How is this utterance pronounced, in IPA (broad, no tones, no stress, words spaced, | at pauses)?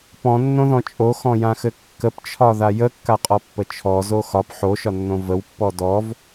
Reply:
pɔ̃nːõðɔ̃ t͡ʃʼoxɔ̃jãxɘ kːəpt͡ʃʰɒða jəkːaqʼɔpːə t͡ʃʰɔzo xɒp ħoʃɒnːõ vəwpːɔ dɔv